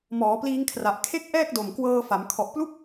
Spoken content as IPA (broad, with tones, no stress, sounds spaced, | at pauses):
m ɔː˩˦ p l iː˧ ŋ kʰ r a˨˩ ʔ kʰ e˥˩ k̚ ʔ ɛː˥˩ k̚ d o˨˩ m k w ɤː˧ f a˩˦ m kʰ ɔ˨˩ ʔ p l u˥˩ k̚